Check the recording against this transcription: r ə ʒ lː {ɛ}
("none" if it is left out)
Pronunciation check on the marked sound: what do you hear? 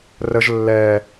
ɛ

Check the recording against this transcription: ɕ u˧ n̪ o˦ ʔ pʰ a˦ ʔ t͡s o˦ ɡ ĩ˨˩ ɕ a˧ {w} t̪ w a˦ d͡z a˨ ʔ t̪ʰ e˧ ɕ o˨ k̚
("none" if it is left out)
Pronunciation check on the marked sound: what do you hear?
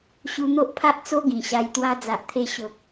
j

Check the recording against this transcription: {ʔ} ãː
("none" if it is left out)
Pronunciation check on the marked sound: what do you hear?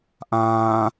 ʔ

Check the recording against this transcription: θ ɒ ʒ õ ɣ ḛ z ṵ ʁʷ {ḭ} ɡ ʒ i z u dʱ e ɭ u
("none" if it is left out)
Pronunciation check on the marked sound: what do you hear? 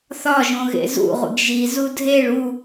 ḭ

